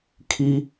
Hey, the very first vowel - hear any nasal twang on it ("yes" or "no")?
no